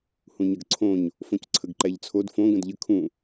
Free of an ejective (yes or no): yes